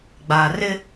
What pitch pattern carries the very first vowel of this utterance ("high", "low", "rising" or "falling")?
low